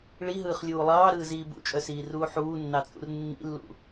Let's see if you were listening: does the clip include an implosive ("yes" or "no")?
no